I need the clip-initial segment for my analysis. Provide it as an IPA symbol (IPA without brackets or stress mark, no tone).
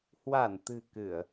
h